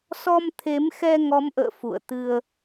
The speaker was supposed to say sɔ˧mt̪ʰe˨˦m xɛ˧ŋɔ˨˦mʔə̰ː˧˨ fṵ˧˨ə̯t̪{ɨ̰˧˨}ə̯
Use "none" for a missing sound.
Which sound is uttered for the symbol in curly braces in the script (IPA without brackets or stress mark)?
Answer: ɨ˧